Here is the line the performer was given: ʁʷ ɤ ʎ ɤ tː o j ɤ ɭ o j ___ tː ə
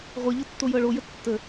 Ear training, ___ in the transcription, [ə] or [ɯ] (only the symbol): ə